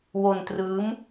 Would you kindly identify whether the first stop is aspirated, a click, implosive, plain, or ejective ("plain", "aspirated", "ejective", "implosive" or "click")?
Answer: plain